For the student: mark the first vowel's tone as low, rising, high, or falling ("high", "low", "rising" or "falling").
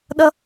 high